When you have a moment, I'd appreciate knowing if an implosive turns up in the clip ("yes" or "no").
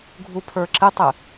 no